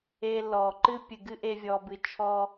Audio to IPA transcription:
e˧ l ɔ˨ ǃ ɨ˦ pʲ ɨ˨ ɡ ɨ˦ ʔ e˧ vʲ ɔ˧ b ɨ˧ t͡ʃʰ ɔ˦

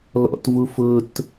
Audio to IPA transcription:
l ɔ̰ t v u f ʊ t

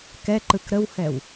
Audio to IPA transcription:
k ɛ ǃ ɯ k ɾ ə w h ɛ w

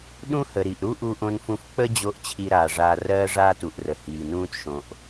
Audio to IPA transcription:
ɗ ũ˥ h ə˩ ɾ i˩ ʔ ɾ u˥ ʔ u˧ ʔ õ˧ n f ũ˧ f k͡p ə˥ d͡ʑ o˧ ʔ t͡ɕʰ i˧ ɾ aː˩ ʐ aː˧ r ɜː˥ ʐ aː˥ t u˩ ʔ r ə˩ h iː˩ n ũː˥ t ʃ õ˩ ʔ

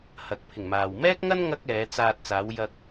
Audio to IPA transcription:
h ɐ˨ k̚ pʰ ɪ˨˩ ŋ m aː˨ w m ɛː˥ k̚ ŋ ɐ˥ n ŋ ɐ˥ k̚ ɛː˨˧ t͡s aː˧ t̚ t͡s aː˨˧ w j ɐ˧ k̚

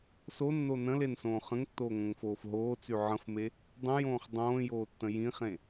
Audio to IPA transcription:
s o nː o n ə̃ l e n s õː χ ə̃ ŋ tː oː ŋ õ ŋ f oː f ɦ oː t͡s y ʕ ə̃ f m e | dˤ ə̃ j õː χ dˤ õː j oː tː ə̃ j ĩ χ ẽ

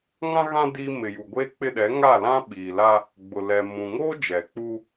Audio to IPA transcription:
ŋ ã˦ ɣ ã˦ d i˦ m ɪ˨ j u˨ ɡʷ eː˦ k͡p ɪ˦˨ ɗ ɛ˨˦ ŋ a˦˨ l ã˦ ɓ iː˨ l a˦ | ɡ͡b ʊ˨ l ɛ˨ m ũ˨ ŋ oː˦ d͡ʒ ɛ˨ k͡p u˦

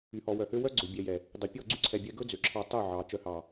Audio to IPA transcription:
y˨ h ɔ˨ w œ˨ h ø˦ w œ˦ ɡ͡ǀ ø˨ bʲ ɛ˨ j ɛ˨ | dˤ ɵ˨ pʲ ɔ˦˨ ɡ͡ǀ y˦ ǀʰ ɛ˨ bʲ ɛ˦ ɡ ɵ˦ d͡z ø˨ ǁʰ ɑ˦ tˤ œ˦˨ ʕ ɑ˨ t͡ʃ œ˨ h ɑ˨

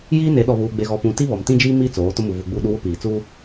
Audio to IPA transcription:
j iː˦ n e˨˦ ɗ ɔ˨ β uː˨ ɡ͡b e˨ ɣ ɔ˨ p ũ˨ t i˦ β ɔ˨ m t ĩ˦ d͡ʒ iː˦ m iː˦ t͡s oː˨˦ t ʊ˦ m u˨ v u˨ ɡ͡b u˦˨ ɗ u˦ w ʊ˦ p iː˨ t͡s uː˦

